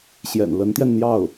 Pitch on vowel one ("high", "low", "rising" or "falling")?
low